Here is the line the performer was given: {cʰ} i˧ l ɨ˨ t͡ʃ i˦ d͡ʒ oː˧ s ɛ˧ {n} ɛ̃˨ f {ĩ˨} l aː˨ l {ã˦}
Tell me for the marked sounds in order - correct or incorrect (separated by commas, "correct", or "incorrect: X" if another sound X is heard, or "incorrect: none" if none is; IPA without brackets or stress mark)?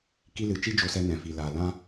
incorrect: k, correct, incorrect: i˨, incorrect: ã˧